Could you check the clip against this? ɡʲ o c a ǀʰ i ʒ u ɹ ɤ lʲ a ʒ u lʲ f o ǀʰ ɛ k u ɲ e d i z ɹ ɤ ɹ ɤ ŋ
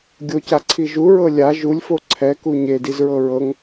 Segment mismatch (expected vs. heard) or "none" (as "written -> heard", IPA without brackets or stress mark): none